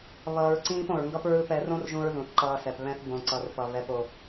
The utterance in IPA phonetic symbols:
β ʌː˧ ɹ ǀ ĩː˦ p õ˨ ɹ ŋ ɡ ʌ˦ p ɹ ɯ˦˨ p ɛ˨˦ r õ˦ r ʒ ũ˧ ɹ ð ũ˨ θ ǃ ʌː˧ s ɛ˨ p β ɛ̃˦ θ b õ˧ ǀ ʌ˨ r p ʌ˨ β ɛ˧ p o˧

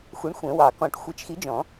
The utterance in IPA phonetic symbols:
xʷ i˨˥ ɳ xʷ ɛ̃˨˩˦ w ɑ˨˩˦ k ɔ̃˨˩˦ ʈ xʷ e˨˥ t͡ʃ x i˨˥ d͡ʒ ɔ̃˨˩˦

